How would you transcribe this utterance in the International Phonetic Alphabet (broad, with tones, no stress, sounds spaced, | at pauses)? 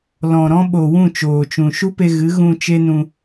l ɔ̃˨ ɾ ɔ̃˦ ɓ o˨ w ũ˦˨ t͡ʃ oː˨ t͡ʃ ũ˨ ʃ u˦ p e˧ ɣ ɨ˨˦ ɣ ũ˧ t͡ʃ e˦ n ũ˧